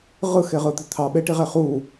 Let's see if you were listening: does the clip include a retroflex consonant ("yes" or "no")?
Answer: yes